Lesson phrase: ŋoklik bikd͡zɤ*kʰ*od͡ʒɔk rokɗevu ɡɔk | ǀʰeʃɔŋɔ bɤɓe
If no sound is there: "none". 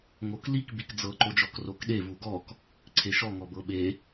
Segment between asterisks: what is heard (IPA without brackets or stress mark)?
ǃ